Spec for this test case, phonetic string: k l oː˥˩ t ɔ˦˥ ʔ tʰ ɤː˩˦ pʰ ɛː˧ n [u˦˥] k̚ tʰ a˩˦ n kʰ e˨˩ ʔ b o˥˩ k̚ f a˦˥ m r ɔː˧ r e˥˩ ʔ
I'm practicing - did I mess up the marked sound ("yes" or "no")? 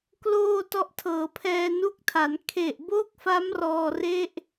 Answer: no